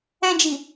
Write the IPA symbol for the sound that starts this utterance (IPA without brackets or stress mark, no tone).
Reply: ɛ̃